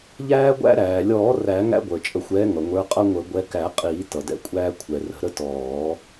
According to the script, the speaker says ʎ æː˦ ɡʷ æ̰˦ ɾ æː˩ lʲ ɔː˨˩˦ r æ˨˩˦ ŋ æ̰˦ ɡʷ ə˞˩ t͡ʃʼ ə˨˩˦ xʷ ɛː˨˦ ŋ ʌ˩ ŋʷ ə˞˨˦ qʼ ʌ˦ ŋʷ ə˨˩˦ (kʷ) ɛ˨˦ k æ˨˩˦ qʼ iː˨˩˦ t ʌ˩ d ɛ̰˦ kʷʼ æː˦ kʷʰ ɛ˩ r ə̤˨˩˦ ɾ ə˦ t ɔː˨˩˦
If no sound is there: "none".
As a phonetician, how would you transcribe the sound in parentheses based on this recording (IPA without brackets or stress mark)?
ɡʷ